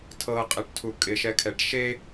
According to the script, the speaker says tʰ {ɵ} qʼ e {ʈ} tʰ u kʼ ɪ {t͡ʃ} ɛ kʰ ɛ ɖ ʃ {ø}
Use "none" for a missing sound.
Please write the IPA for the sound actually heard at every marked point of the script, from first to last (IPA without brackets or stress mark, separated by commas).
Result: ɤ, ʈ, ʃ, e